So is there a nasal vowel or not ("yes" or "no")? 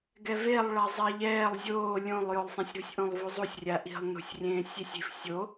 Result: yes